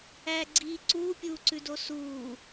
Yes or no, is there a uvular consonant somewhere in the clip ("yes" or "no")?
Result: no